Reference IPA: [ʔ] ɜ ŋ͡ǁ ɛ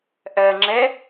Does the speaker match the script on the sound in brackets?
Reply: yes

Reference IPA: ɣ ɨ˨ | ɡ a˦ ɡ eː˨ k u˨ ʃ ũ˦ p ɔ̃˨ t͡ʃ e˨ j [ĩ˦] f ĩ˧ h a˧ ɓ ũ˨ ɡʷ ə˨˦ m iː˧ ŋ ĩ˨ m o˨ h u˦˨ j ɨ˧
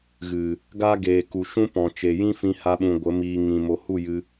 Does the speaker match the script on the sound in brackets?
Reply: yes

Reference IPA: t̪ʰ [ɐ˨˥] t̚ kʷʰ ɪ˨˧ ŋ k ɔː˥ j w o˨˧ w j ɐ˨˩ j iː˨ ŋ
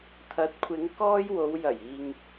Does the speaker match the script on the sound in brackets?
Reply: yes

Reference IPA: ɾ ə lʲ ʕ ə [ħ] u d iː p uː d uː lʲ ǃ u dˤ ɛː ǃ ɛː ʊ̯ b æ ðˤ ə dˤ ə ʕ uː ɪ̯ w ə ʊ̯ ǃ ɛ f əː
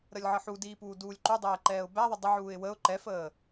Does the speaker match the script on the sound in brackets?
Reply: yes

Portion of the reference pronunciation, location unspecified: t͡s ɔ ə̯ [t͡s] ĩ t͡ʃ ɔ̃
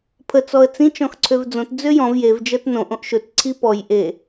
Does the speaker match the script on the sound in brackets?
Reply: yes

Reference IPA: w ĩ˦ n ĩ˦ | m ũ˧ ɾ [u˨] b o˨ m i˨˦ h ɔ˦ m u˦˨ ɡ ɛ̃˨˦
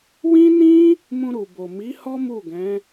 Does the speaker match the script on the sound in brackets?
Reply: yes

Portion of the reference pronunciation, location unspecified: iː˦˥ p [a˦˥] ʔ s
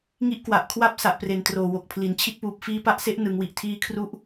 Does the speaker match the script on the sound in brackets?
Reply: no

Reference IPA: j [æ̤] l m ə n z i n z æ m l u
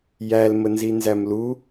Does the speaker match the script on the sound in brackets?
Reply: no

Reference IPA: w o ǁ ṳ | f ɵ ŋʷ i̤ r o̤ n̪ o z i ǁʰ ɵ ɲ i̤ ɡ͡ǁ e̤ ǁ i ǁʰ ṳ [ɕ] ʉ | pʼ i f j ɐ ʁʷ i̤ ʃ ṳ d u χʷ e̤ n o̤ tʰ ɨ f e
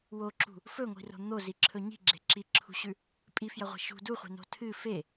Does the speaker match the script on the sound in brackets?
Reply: yes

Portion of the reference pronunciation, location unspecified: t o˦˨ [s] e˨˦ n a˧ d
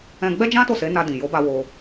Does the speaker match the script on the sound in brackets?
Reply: yes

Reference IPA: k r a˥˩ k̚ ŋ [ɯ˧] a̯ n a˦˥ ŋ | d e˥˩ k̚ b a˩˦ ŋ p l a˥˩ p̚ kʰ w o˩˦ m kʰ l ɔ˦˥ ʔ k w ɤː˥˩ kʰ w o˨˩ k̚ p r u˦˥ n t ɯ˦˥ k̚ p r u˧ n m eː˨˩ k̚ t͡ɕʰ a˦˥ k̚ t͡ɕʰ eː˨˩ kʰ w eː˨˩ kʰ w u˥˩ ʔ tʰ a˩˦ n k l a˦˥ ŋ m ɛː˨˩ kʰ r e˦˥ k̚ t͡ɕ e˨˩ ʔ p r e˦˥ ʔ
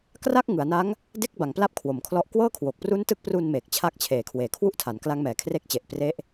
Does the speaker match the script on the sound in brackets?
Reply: no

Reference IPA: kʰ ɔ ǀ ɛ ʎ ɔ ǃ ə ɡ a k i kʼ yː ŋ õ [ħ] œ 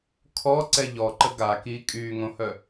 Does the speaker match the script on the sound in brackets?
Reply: no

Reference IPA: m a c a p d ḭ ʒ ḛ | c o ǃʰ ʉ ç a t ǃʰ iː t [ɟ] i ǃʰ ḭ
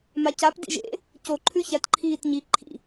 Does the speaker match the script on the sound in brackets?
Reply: no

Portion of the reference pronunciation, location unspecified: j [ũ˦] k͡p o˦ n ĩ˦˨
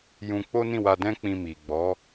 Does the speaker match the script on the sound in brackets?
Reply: no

